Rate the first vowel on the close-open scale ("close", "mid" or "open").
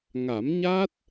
open